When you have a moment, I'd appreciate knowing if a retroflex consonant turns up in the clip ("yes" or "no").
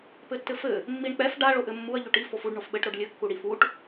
yes